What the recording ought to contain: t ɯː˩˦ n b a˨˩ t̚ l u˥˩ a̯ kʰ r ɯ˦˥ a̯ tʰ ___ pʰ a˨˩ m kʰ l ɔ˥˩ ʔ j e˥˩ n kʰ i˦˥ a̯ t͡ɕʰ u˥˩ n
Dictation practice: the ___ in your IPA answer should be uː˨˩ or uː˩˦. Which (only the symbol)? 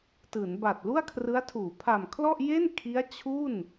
uː˩˦